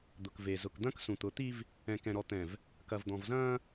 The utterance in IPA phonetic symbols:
d̪ ʊ˨ k v e˨ z ʊ˨ k d̪ ɐ̃˦ k s ũ˨ t̪ ʊ˨˦ t̪ i˦ v | ɛ̃˨ k ɛ̃˨ ɾ ɔ˨ t̪ ɛ̃˨ v | k ɐ˨ v d̪ ɔ̃˨ v z ɐ̃ː˦

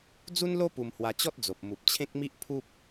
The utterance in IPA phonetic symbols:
d͡z u˦ n l o˦ p u˧ m h w a˧ t͡ɕ ɔ˦ t̚ d͡z o˨ p̚ m u˨ p̚ t͡ɕʰ ẽ˦ k̚ m i˦ ʔ pʰ u˦ p̚

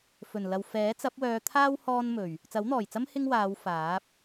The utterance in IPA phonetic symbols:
f ɵ˨˩ n l ɐ˨ w f ɛː˨˥ t͡s ɐ˨˥ p̚ w œː˨˧ t̪ʰ aː˥ w h ɔː˥ n m ɵ˨˩ ɥ | t͡s ɐ˨˥ w n̪ ɔː˨˩ j t͡s ɐ˥ m h ɪ˥ ŋ w aː˨˧ w f aː˨˥ p̚

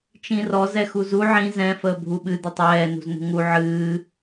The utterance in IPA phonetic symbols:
t͡ʃ ĩ r ɔ z ɛ x u z u ʕ ĩ z ɛ̃ f əː bʱ u ɓ ɨ d̪ ə tˤ ɛː n ṳ z n ṳ ŋ u ʕ ɨː

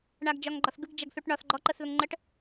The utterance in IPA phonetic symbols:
ɳ a ɡ d͡ʒ ɒ ŋ ɡ͡ǃ ɒ θ ɡ ɯ ɡ d͡ʒ ɐ ɡ θ u ʈ ɳ ɒ θ ɡ͡ǃ ɔ ǃ ə θ ð ə ŋ ŋ͡ǃ ə ʈ

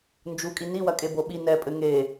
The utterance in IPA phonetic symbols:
n d͡ʒ u kʼ i n i w ɐ kʼ e b o ɓ i n ɛ pʼ ɘ ŋ e

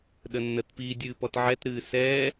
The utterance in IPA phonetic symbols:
ɗ ə nː ə t p iː dʲ ɨː p ɔ t ʕ ɛ t ɾ ɨː s ɛː

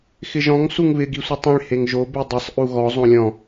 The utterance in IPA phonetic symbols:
x ɪ ʒ ɔ̃ ŋ s u ŋ β ɪ ɡ i sʷ i tˤ ĩ ɭ h e ŋ ʒ o b i dˤ e sˤ ʔ u ɣ ɔ zˤ õ lʲ ɔ̃

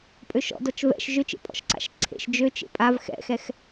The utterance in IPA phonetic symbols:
pʼ ø ʃ ɔ̰ d ɔ t͡ʃ v ɛ̰ ʃ ʒ ø t͡ʃ ḛ pʼ ɔ̰ ʃ ǀ a̰ ʃ ǀʰ ḛ ʃ d͡ʒ ø t͡ʃ ḛ pʼ a v x ɛ̰ x ɛ x

